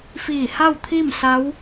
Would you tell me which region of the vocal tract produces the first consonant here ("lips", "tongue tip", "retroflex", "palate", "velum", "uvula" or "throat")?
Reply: lips